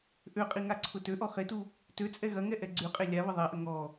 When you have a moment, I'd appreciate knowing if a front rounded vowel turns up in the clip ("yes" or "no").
yes